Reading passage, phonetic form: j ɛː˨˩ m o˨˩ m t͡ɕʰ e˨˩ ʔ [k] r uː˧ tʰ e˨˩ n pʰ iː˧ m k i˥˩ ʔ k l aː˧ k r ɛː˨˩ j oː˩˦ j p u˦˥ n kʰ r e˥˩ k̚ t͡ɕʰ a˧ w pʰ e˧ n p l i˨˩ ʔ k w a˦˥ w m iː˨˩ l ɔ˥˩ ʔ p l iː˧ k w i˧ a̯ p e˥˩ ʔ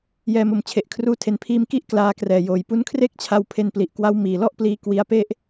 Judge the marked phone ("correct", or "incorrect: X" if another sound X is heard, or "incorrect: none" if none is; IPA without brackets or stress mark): incorrect: kʰ